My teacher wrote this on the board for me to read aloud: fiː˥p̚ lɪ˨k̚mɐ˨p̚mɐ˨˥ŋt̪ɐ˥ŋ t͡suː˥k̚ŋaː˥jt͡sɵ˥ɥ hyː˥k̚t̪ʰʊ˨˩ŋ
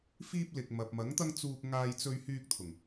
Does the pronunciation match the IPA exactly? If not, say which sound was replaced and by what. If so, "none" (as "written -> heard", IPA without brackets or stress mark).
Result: none